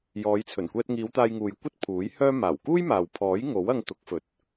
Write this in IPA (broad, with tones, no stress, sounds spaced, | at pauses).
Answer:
j ɔː˨˧ j t͡sʰ ɵ˨˩ n kʷ ɛː˧ t̚ ŋ iː˨˧ w t̪ aː˧ j ŋ uː˨ j kʷ ɐ˥ t̚ pʰ uː˨˥ j h œː˥ m aː˨˩ w k uː˥ j m aː˨ w pʰ ɔː˨˥ j ŋ o˨˥ w ɐ˧ ŋ t̪ ʊ˨˥ k̚ f ɵ˨˥ t̚